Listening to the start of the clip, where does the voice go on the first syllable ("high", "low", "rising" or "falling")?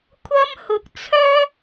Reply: high